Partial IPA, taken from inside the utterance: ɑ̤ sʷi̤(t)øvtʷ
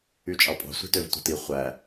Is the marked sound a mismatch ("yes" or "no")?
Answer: no